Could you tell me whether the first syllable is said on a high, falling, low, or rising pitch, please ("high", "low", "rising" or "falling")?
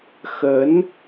rising